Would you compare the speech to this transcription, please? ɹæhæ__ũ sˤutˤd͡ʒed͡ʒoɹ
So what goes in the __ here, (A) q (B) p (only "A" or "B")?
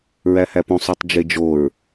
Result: B